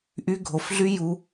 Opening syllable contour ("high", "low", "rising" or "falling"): high